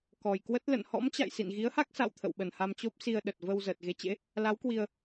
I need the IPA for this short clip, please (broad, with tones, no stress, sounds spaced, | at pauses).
k ɔ˨˩ j k w ə˦˥ t̚ l ə̰˧˨ n h ɔ̰˧˥ m t͡ɕ a̰˧˨ j s ḭ˧˨ n ɣ i˨˦ ə̯ h a˦˥ k̚ s a̰˧˨ w t̪ʰ ə̰˧˨ w ɓ ə˨˩ n h a˧ m t͡ɕ o˦˥ p̚ s i˧ ə̯ ɗ ə˨˩ t̚ v ə˧ w z əː˨˩ t̚ ɣ e˨˦ t͡ɕ ḛ˧˥ | l a˨˦ w k w i˧ ə̯